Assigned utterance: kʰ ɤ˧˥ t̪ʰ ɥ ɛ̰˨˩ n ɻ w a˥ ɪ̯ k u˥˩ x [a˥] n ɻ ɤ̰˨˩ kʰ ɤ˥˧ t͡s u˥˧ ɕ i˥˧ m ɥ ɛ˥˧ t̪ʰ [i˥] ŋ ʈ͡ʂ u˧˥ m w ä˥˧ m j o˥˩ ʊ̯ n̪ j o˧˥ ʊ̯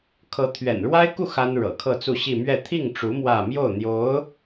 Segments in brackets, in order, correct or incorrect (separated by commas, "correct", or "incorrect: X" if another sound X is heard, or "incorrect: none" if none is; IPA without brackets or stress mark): correct, incorrect: i˥˩